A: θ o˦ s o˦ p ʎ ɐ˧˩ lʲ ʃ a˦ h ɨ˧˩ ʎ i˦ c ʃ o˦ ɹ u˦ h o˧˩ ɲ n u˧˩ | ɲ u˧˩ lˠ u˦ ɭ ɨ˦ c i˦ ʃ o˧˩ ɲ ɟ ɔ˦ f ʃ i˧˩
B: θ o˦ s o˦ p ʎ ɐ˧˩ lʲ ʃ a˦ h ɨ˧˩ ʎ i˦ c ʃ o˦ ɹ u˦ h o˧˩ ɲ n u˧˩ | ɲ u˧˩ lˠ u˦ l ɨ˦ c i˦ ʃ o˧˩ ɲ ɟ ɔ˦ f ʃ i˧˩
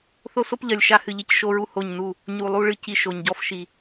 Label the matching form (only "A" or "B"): A